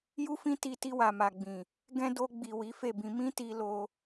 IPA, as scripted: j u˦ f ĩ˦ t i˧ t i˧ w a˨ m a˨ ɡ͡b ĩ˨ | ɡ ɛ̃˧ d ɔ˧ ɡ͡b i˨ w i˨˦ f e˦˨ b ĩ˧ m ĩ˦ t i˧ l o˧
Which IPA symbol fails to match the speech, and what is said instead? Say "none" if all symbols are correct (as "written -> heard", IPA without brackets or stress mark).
ɔ˧ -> o˧